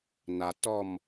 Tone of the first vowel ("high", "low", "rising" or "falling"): low